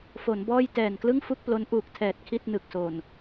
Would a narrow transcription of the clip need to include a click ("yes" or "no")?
no